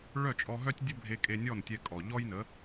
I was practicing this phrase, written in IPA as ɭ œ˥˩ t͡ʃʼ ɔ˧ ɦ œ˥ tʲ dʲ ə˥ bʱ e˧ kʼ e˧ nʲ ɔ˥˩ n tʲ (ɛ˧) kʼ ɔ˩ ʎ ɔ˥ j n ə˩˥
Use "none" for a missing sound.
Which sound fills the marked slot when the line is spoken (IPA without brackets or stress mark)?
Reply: ɛ˧